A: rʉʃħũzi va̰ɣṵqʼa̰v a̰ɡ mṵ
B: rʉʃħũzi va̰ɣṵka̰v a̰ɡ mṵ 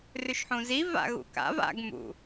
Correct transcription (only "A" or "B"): B